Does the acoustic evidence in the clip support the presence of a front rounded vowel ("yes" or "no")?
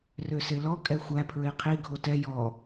yes